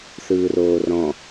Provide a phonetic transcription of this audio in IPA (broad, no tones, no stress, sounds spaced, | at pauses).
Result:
θ ɯː r oː r ɔ̃